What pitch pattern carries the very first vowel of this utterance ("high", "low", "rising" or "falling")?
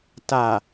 low